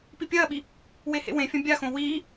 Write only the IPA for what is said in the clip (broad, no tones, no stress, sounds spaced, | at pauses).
p i pʲ ɐː ɓ i | w e h ḛ w ẽ fʲ ɐ̃ bʲ a x õ w iː